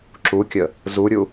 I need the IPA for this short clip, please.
ǁukʲə | zuɾʲu

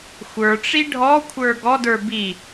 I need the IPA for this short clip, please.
xʷə˞ʈ͡ʂi ɖʱɔ kʷʰə˞ɡɔdə˞ bi

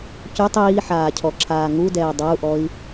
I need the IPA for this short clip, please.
cʉtˤ iːħaːcʰɔǁʰaː ŋudɛː dˤau̯ʔɔi̯

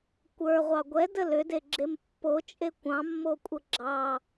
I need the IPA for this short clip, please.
kʷə˞ʁʷɑ ɡʷɛdə lʏdeɡ͡ǁem pːot͡ʃʼe kʷɑ̃mːokʷʼə ɡ͡ǁɑ

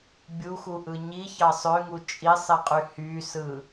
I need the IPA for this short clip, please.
bʲuxuʔɯ ɲiçɑ sˤøŋu t͡ʃʼisˤiqʼy hysɯ

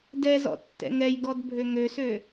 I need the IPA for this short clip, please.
dɛzɔ̰ tːɛ̰ŋɛjɡɔd bʱøŋøsø

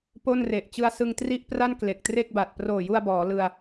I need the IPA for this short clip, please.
po˥˩nre˨˩ʔ t͡ɕɯ˧a̯sɯ˧ŋtri˥˩ʔpra˥˩n kle˨˩k̚tre˥˩k̚ba˨˩t̚ proː˨˩ju˧a̯ bɔː˩˦ lɯ˧a̯

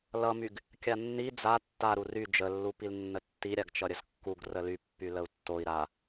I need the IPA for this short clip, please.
lʌmyɡ | kʲanːi d͡za tːaɾu ry d͡ʒəlːu pilnːətːi ɾʲaɡt͡ʃʌɾʲəzkːuɡ rəly pːyləu̯tːoi̯ ɾa

